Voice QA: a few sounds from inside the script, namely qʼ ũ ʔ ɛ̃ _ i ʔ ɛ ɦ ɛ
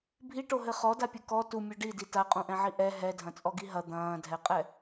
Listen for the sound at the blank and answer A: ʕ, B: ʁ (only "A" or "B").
A